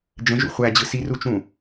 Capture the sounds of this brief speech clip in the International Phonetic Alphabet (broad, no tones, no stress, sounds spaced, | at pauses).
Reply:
d͡ʒ ə̃ ʒ ṵ χʷ æ d͡ʑ ɯ s i r u t͡ʃ ũ